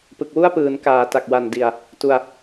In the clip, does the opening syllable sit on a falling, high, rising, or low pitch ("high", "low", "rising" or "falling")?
low